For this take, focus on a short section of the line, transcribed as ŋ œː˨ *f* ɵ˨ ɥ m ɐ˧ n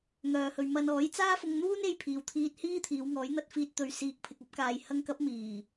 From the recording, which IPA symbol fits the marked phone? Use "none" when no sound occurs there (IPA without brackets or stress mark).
h